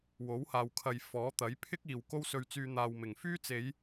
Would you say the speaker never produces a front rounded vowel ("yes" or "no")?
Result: no